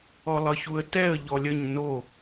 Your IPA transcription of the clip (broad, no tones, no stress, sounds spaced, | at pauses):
ɔ lˠ ʌ ç u ə̯ t ɛ ə̯ ʎ ɔ lʲ ə ɲ n o